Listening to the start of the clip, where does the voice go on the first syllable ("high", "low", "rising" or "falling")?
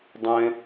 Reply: high